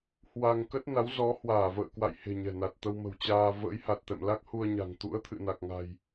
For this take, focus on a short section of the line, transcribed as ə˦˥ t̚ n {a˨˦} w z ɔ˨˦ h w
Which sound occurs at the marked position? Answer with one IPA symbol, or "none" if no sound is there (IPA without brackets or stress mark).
a˨˦